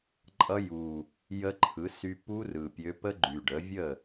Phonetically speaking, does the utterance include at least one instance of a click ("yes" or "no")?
yes